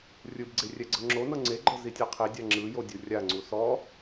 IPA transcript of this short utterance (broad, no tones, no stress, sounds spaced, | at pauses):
rʲ ɯ b ɡ͡ǀ e rʲ ɛ ɡ͡ǀ ɤ ŋ͡ǁ o n ɤ ŋ͡ǀ e ɡ͡ǃ ɤ z i tʲ ɤ qʰ i dʲ a ŋ͡ǁ ɯ j o dʲ u rʲ a ŋ͡ǀ u s ɔ